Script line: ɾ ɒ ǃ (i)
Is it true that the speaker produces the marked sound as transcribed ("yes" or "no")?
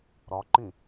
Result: no